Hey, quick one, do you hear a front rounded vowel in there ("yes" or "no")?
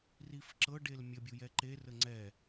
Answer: no